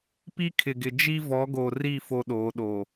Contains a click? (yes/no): no